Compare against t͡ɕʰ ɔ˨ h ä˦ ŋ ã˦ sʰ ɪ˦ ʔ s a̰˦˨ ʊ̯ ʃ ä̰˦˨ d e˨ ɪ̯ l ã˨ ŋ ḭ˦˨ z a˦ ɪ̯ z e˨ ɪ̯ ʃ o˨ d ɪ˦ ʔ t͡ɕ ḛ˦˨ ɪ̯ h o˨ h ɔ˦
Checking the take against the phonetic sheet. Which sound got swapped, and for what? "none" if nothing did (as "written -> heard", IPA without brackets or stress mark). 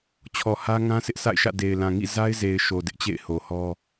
ʊ̯ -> ɪ̯